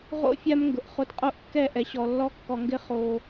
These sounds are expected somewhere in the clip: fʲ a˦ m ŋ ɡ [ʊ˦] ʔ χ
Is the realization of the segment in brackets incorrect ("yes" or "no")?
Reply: yes